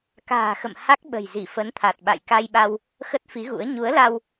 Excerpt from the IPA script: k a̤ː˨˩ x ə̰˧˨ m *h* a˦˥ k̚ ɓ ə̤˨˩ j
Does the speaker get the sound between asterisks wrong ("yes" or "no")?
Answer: no